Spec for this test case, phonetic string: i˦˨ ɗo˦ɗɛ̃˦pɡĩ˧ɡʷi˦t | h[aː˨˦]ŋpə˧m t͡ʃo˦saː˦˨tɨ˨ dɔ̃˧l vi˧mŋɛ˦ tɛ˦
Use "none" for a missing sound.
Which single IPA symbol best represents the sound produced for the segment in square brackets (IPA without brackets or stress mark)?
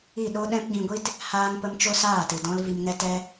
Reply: aː˧